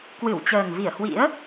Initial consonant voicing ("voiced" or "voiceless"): voiceless